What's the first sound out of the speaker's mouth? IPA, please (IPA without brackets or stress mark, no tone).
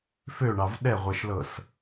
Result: f